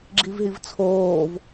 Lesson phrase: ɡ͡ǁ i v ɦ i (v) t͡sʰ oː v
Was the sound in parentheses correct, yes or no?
yes